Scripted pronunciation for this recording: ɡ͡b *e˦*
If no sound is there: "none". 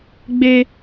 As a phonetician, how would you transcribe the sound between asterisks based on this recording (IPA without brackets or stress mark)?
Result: e˦